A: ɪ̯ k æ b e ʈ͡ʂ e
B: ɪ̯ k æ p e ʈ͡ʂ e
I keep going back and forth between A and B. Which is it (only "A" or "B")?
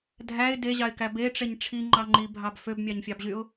A